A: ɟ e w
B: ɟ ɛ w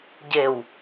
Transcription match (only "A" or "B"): A